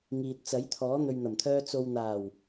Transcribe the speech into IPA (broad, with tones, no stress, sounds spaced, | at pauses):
ŋ iː˨ t̚ t͡s ɐ˨˥ j t̪ʰ ɔː˨˥ n̪ ɵ˨ ɥ n̪ ɐ˨˩ m t̪ʰ œː˧ t͡s o˨ w n̪ aː˨˩ w